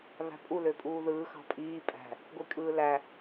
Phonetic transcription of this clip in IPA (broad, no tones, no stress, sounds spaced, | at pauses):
β æ̤ pʼ u l ø pʼ uː ð ɯː x ɑ̤ pʼ iː pʼ æ̤ | ɡʷ i kʼ ɯː l æ